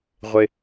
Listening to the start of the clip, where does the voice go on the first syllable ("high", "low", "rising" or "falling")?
high